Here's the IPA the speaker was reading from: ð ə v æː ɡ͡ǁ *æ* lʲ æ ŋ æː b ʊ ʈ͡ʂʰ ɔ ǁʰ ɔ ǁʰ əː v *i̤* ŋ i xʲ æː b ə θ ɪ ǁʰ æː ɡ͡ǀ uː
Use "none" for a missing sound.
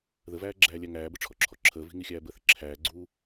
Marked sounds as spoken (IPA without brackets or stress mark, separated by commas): æː, i̤